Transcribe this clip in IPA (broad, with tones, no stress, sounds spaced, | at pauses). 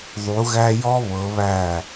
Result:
ðˤ u˨˦ ɣ æ˦ j ɔ˦ β ɤ˨˦ β æ˦˨